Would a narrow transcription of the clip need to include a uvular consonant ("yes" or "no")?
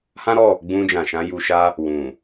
no